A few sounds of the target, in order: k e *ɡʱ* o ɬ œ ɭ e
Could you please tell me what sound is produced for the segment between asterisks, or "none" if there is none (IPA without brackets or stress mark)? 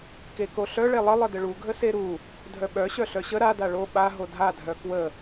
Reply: k